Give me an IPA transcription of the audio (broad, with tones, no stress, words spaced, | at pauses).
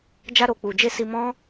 d͡ʒa˧ɾo˨k͡pu˨d͡ʒe˧ si˧mɔ̃˦